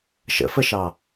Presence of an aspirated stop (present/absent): absent